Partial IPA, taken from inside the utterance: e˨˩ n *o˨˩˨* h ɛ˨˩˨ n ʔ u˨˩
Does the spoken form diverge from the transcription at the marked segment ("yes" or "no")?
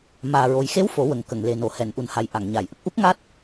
no